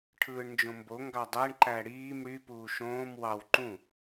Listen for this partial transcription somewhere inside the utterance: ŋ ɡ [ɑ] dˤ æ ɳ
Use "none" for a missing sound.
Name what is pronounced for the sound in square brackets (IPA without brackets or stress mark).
ɑ